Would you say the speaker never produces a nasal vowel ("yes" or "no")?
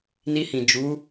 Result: no